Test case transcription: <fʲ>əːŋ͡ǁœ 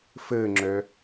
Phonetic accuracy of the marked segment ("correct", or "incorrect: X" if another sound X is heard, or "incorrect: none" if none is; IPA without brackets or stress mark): incorrect: f